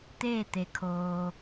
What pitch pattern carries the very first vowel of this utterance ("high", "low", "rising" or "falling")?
falling